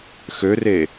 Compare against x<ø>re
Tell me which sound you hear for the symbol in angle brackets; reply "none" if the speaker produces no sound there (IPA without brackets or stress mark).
ø